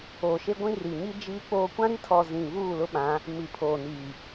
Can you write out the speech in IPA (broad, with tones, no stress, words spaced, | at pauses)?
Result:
oː˨ʃe˦ɡʷĩ˦ ri˨ɲi˦ d͡ʒiː˦k͡poː˦ kʷã˦ɾi˦tʰɔ˨ zĩ˨ βuː˦˨lʊ˦ɓã˨˦ | mi˨pʰoː˨ niː˨